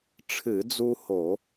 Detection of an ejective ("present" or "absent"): absent